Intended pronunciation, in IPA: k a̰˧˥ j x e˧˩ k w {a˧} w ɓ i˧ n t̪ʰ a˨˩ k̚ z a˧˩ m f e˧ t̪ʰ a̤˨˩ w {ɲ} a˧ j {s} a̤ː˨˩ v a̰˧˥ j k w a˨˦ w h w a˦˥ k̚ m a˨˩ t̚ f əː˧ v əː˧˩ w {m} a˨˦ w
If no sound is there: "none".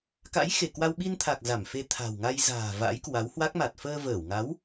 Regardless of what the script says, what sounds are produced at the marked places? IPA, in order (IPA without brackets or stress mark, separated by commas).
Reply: a˧, ŋ, z, ŋ